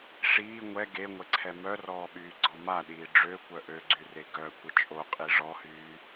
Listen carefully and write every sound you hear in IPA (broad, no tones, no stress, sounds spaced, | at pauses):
ʂ iː ŋʷ ɛ ɡ e ŋʷ ɛ ǀʰ ɛ m œ r ɔː ɓ yː ɡ͡ǀ ɔ m a ɗ iː ɖ͡ʐ ø kʷ œ ʔ ø ɡ͡ǀ y r e ɡ œ kʷ ə t͡ʃʼ o qʼ i ʐ ɔ h yː